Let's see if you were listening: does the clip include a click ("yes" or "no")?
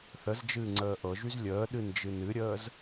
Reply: yes